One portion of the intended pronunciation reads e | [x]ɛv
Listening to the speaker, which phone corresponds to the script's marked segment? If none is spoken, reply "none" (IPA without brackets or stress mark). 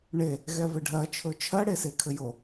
ɣ